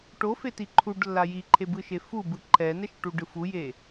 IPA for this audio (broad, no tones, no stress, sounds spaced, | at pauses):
ʈ o f e t i ǃʰ u ɖ lː a j i ǃʰ e b ɯ ʃ e f u b ɯ ǃʰ ɛ n ɛ ʃ ʈ u ɖ ɯ f u j e